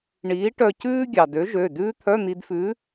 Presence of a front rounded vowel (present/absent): present